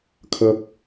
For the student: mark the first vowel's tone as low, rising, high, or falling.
low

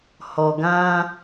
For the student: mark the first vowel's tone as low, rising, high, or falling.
low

